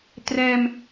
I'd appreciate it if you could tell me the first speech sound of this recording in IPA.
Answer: t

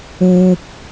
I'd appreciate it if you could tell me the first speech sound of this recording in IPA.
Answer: uː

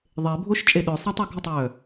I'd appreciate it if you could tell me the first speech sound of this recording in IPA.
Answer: ðˤ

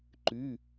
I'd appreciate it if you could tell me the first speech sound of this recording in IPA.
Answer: ǃ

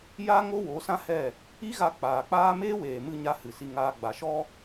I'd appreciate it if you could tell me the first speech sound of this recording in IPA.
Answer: j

